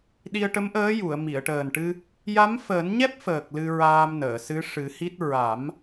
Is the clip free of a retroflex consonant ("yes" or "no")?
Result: no